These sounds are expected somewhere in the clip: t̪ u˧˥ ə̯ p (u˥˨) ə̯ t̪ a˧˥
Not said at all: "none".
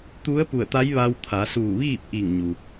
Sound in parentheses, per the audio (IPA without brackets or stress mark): u˧˩